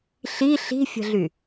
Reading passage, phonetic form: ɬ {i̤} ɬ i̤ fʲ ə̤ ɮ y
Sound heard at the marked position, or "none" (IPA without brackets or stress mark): i